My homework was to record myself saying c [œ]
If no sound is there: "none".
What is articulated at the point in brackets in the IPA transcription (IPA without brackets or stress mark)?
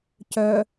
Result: œ